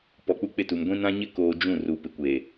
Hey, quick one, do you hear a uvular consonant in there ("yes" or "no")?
no